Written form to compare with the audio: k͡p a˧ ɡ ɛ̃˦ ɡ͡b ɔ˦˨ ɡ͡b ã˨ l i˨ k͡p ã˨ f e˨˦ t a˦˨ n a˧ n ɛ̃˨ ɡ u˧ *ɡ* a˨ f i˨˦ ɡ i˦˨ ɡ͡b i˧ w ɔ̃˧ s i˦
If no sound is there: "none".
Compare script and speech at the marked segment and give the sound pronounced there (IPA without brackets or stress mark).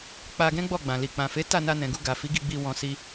ɡ